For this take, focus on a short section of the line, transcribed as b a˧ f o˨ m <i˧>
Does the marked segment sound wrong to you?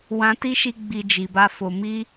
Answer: no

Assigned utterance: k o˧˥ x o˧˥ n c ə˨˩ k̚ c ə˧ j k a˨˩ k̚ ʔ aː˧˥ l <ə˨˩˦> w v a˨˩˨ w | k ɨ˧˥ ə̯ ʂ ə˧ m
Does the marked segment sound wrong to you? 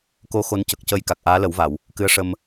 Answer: no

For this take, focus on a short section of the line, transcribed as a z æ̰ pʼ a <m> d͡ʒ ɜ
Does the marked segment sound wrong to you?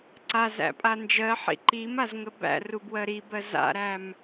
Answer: yes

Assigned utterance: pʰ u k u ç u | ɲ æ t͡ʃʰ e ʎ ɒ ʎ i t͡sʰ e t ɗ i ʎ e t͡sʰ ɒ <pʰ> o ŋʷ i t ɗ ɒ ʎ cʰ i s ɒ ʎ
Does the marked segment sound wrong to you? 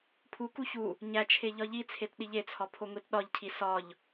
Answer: no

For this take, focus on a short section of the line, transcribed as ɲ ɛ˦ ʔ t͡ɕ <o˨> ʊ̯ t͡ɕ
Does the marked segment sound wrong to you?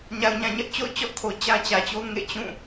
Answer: yes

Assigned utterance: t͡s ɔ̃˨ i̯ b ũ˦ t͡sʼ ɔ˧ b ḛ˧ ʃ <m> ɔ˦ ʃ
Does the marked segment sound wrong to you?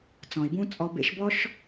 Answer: yes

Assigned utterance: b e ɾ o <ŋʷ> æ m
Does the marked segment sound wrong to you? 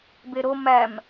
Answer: yes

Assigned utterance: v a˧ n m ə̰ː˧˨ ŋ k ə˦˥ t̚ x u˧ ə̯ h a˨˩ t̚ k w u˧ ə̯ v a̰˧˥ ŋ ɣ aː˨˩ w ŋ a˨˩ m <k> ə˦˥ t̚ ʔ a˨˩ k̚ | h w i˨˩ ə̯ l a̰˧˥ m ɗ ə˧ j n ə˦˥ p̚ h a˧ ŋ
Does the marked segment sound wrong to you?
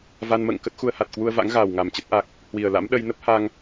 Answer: yes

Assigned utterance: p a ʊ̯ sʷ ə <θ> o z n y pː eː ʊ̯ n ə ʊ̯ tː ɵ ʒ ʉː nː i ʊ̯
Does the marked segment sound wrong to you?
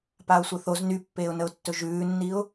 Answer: no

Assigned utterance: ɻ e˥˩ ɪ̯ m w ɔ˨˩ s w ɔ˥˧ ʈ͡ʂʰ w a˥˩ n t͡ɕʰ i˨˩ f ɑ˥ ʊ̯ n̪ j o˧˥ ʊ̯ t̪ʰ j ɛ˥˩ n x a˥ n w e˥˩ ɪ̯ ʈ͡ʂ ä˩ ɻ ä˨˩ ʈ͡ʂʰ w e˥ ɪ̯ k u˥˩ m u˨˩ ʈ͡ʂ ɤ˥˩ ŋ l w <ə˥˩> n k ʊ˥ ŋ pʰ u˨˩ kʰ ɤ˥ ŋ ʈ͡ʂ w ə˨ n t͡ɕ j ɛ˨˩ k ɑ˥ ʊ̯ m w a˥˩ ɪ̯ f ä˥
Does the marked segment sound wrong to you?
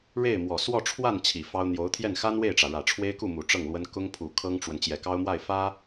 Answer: yes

